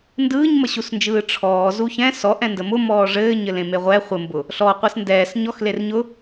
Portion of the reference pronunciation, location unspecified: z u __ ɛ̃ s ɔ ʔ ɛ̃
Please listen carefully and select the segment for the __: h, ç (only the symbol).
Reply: ç